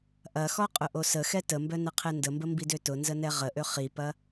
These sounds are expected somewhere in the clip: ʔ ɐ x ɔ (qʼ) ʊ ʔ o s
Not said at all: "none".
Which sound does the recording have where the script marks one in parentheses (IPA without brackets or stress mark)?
qʼ